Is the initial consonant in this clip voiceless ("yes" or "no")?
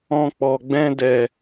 yes